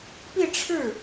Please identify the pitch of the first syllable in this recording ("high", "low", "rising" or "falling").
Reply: falling